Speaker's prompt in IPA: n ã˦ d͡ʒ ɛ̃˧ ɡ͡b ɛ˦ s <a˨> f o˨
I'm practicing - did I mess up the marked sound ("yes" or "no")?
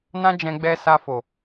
yes